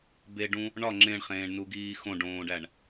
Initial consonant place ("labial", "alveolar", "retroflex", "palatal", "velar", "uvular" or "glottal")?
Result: labial